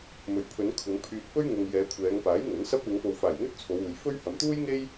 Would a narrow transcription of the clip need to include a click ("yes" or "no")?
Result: no